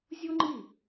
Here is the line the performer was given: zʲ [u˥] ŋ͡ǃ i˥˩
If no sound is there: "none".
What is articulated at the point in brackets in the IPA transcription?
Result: u˥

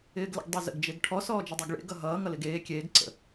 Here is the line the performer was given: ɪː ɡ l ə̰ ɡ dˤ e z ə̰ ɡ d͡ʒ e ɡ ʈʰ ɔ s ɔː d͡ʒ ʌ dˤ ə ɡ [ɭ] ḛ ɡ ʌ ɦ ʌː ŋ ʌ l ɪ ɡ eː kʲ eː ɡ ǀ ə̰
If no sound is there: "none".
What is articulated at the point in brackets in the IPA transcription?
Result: ɭ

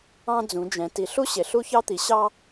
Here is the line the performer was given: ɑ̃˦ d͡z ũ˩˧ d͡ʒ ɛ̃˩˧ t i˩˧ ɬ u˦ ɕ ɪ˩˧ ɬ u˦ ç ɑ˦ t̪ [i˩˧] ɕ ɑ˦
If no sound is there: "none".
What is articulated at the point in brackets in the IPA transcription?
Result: i˩˧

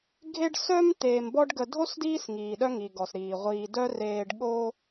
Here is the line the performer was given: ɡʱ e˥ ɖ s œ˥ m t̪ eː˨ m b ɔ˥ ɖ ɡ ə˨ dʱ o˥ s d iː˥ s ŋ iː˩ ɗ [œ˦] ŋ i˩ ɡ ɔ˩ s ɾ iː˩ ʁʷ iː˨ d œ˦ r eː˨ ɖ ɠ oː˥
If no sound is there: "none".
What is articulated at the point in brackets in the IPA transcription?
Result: œ˦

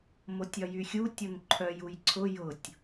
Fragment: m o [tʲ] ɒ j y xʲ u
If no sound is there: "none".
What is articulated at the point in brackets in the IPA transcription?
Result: tʲ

